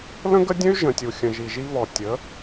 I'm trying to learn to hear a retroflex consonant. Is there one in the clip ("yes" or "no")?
no